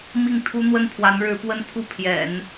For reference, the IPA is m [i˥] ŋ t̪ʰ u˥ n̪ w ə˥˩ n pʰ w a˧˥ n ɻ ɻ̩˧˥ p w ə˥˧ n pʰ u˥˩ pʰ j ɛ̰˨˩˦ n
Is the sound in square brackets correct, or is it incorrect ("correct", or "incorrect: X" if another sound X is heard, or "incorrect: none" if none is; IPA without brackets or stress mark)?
incorrect: i˥˩